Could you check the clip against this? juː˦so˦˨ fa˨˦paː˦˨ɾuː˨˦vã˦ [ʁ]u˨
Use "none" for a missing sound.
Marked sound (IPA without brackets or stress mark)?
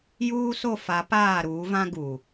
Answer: ɡ